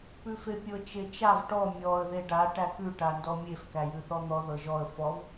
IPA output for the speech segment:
pʉfepʲɤ t͡ʃet͡ʃav ʈɔ mʲɔə̯ ðeɖa ʈækʉ ʈandɔmʲef kæjʉθɔn̪ɔ ðɤʒɔə̯ fɔv

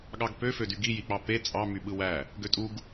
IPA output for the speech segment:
ɠɑɡpøfø dyɡijik͡pɑ pe t͡sʼɑ myɓɯwæ | ɡøtʼuɡ

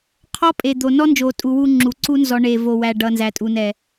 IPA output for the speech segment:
qʰɔ˦ pʼe˨d̪o˨ nɔ˦nd͡ʒo˨tʼu˨ wu˦ŋ͡ǁu˨ ǀu˦nzɔ˨ ɳe˨vo˨wæ˨ ɖʌ˨nzæ˨tʼu˨nɛ˨

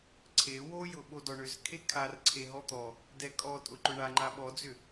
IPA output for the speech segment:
ǀʰe wojʊ ɓodɔɳʏz kʰekʰar ǀʰeɦɔt̪ɔ | dɛkʼɔ tʼʊǃʊɳa ŋ͡ǃaɓɔd͡zʏ

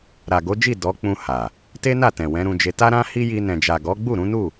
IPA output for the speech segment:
ɾa˨ɡo˨˦d͡ʒi˦˨ dɔ˨˦ k͡pũ˧ ha˨ | te˦na˦˨tɛ̃˨ wɛ̃˨˦ɾũ˧d͡ʒe˧ ta˦ɾã˦hi˦ ji˧nɛ̃˨d͡ʒa˨ɡɔ˨˦ ɡ͡bu˦˨ ɾũ˨˦nu˦˨

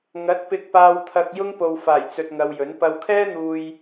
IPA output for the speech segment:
ŋɐ˨˥t̚pɪ˧k̚paː˧wt̪ʰɐ˧k̚ jʊ˥ŋ po˨wfaː˨˩j t͡sɵ˧t̚ŋɐ˧wjɵ˨˥n pɐ˧wkʰɛː˥n̪uː˧j

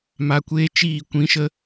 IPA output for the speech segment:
ma˧kʷeː˦ t͡ʃiː˦˨ kʷĩ˦ʃə˦

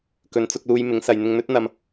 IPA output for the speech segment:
kɵ˨nt͡sʊ˧k̚luː˧j mɪ˨˥ŋsɐ˨j n̪ɪ˧ŋn̪ɵ˥t̚ n̪ɐ˨m

